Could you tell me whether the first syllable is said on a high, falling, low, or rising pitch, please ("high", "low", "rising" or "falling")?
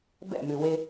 falling